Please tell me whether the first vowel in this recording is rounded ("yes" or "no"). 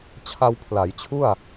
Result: no